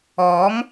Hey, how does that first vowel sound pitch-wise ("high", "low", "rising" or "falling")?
rising